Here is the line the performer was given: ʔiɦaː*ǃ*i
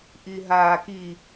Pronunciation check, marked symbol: incorrect: k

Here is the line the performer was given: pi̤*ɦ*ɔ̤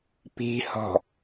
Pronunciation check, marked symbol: incorrect: h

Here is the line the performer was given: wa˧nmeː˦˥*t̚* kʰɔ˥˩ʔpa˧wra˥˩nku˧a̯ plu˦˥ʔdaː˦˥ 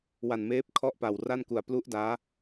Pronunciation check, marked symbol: incorrect: p̚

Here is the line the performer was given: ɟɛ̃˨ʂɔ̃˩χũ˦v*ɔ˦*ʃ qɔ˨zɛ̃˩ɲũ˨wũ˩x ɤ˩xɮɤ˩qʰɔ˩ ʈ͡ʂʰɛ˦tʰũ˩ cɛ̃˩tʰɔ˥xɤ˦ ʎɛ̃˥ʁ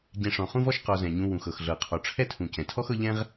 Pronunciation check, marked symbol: correct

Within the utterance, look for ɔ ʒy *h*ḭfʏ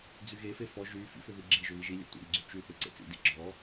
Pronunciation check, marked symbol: incorrect: f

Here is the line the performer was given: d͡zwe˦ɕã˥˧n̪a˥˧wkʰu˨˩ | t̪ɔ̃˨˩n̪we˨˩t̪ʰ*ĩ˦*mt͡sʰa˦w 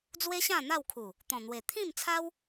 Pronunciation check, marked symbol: incorrect: ĩ˥˧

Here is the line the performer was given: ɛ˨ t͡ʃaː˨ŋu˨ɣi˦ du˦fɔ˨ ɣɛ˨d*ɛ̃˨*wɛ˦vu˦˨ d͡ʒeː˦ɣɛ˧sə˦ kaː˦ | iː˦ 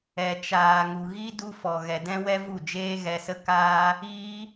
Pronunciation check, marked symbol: incorrect: ɛ̃˦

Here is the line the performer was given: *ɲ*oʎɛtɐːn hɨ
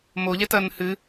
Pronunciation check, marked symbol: incorrect: m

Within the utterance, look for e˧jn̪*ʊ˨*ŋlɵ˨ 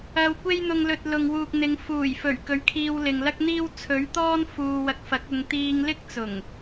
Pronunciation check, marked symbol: correct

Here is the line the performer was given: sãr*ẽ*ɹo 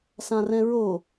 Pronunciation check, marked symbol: incorrect: ɛ̃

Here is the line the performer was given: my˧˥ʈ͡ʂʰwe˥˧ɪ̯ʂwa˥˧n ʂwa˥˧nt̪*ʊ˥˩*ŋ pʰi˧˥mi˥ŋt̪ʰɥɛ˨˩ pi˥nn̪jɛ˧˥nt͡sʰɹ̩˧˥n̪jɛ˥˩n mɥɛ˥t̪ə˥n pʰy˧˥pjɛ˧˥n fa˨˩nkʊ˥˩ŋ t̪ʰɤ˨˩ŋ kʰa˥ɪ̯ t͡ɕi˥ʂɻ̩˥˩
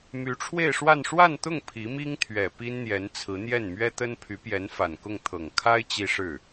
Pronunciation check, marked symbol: correct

